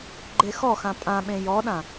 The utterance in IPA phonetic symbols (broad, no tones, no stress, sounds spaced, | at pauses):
ɡ͡ǃ e x ɔ x ã pʼ ã ɓ ẽ j ɔ ɗ ã